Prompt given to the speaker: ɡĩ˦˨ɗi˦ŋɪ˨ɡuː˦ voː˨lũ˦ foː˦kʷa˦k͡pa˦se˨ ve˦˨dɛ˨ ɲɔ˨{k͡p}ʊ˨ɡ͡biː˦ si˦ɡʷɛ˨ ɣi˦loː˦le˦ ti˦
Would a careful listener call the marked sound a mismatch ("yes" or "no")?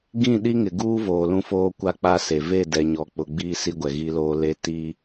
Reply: no